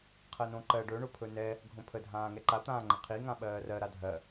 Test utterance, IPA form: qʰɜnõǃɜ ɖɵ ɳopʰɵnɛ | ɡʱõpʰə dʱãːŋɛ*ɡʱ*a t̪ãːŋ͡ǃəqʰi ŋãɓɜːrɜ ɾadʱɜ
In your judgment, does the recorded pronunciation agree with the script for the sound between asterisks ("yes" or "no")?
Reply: no